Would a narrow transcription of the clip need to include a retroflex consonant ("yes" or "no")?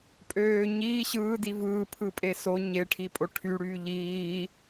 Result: yes